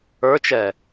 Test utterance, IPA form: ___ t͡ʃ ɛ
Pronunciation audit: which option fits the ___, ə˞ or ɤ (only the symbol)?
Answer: ə˞